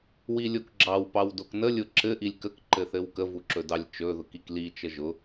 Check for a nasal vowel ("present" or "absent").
absent